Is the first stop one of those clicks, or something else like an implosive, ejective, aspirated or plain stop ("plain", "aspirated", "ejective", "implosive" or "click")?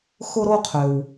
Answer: aspirated